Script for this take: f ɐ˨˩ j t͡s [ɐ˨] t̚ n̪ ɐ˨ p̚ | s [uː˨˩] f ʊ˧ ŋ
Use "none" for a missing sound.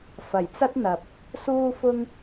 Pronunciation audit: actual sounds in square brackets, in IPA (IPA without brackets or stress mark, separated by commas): ɐ˧, uː˧